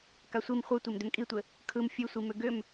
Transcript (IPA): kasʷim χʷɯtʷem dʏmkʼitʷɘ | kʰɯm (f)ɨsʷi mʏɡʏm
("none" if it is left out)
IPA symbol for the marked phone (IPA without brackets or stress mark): fʲ